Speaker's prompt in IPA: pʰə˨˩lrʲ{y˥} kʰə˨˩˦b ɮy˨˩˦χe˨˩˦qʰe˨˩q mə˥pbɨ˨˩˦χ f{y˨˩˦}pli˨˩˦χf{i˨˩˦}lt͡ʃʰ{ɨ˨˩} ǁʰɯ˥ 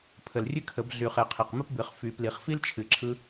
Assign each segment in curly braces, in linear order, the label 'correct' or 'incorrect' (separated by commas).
incorrect, correct, incorrect, correct